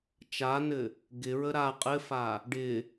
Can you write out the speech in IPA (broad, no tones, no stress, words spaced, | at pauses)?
t͡ʃanɘ | ɡɪɹə ɾa qʼɘfa | ɖɪ